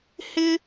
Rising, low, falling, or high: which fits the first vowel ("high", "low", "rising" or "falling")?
high